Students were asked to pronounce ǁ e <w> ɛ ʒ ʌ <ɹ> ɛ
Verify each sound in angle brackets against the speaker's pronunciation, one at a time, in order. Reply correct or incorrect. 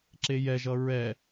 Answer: incorrect: j, correct

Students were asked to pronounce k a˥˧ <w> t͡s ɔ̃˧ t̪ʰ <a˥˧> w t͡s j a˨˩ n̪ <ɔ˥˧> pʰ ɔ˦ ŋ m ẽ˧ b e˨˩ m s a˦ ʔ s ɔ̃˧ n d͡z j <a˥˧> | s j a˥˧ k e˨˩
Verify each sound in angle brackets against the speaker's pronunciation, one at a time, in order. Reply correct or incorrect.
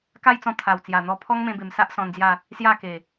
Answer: incorrect: j, incorrect: a˨˩, incorrect: ɔ˧, correct

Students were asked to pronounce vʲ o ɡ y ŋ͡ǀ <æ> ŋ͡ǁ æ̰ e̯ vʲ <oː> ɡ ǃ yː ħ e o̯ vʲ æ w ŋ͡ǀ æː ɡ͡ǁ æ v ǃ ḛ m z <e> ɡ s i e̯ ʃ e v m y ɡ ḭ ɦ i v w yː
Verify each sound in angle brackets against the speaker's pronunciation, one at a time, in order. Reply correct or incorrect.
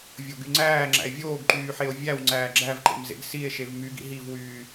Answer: incorrect: æː, correct, incorrect: ḛ

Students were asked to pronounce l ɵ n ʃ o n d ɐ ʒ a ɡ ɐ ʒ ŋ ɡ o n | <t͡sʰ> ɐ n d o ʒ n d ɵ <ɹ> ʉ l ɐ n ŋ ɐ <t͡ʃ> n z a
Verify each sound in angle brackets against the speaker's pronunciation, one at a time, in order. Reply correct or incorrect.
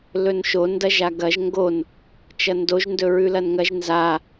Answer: incorrect: t͡ʃ, correct, incorrect: ʒ

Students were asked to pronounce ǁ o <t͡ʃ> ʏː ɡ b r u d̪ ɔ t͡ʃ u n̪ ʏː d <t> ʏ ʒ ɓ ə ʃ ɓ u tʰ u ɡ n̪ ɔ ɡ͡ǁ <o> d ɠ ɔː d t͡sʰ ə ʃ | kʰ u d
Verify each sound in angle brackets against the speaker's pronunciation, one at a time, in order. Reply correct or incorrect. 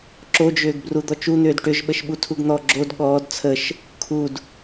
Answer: incorrect: d͡ʒ, incorrect: ʈ, correct

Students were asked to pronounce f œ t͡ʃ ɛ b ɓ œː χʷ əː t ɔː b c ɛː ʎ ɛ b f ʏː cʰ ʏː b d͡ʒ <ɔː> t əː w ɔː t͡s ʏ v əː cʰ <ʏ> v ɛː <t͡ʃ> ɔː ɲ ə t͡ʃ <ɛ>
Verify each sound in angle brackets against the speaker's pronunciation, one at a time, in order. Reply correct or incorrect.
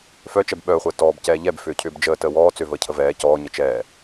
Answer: incorrect: əː, incorrect: ə, incorrect: c, incorrect: ɛː

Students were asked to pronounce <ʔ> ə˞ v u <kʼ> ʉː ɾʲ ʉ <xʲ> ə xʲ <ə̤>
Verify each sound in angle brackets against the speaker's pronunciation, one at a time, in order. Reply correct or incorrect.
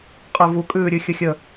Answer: incorrect: qʼ, correct, correct, incorrect: ə

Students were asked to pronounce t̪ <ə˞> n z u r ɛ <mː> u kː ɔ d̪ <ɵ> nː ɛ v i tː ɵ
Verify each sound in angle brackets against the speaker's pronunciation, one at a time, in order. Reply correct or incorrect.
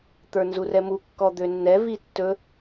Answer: correct, incorrect: m, incorrect: ø

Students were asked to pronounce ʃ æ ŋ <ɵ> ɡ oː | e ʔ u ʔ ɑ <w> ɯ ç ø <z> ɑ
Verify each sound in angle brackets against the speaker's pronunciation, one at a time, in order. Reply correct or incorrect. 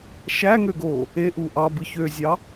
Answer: incorrect: ø, incorrect: b, incorrect: zʲ

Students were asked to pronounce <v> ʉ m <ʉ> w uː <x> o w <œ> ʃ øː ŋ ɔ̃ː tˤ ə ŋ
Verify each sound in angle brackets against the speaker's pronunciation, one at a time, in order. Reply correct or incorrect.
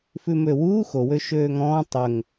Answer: incorrect: f, incorrect: ø, correct, incorrect: ø

